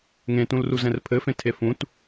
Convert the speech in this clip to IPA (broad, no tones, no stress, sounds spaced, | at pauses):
ŋ ẽ t ũ l r u z ɛ̃ r pʰ ɘ f ẽ tʰ e f ũ t